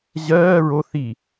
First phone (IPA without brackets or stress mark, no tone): ʑ